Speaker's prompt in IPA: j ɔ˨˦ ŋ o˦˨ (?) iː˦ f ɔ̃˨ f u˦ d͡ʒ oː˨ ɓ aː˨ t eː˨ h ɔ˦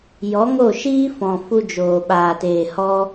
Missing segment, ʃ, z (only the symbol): ʃ